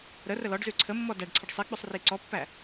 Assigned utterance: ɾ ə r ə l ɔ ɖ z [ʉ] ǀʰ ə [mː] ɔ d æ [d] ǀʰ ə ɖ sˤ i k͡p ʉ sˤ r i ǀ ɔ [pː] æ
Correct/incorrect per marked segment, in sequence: correct, correct, incorrect, correct

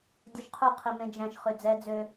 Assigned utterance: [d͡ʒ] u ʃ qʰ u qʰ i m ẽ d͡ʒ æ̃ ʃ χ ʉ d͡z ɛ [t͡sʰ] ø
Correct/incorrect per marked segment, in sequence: incorrect, incorrect

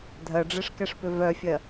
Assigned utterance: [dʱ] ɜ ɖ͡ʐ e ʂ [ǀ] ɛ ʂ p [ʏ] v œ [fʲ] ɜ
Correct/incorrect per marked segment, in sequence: correct, incorrect, correct, correct

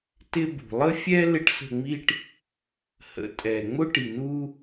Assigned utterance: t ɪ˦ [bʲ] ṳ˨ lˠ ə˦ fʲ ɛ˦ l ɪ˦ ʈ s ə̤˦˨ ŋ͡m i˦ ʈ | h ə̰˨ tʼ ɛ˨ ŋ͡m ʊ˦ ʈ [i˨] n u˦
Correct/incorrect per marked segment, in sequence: incorrect, correct

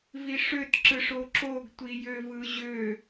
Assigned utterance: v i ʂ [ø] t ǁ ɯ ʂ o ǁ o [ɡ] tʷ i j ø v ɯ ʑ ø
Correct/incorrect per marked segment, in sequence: correct, correct

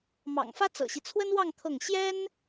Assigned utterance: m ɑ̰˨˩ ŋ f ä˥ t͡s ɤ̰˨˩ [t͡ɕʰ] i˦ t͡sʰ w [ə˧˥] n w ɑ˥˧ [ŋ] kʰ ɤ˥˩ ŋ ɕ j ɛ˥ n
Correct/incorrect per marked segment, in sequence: incorrect, incorrect, correct

